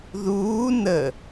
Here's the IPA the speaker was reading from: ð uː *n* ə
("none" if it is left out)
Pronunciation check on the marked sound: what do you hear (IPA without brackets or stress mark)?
n